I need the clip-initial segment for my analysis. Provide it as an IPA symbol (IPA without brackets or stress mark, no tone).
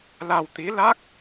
l